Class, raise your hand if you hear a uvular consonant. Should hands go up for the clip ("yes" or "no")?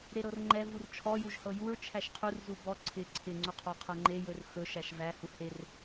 yes